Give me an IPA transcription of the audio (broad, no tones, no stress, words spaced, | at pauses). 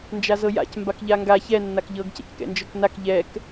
nd͡ʒazɤja̰c mbakʎaŋɡa çɛ nːakʎɤɡ cɛ̰ckɛ̰nd͡ʒɤknak ʎɛk